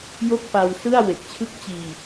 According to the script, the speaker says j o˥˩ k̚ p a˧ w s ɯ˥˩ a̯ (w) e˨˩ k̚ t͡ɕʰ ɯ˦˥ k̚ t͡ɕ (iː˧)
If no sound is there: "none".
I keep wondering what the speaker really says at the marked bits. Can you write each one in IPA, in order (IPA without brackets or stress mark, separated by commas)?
w, iː˧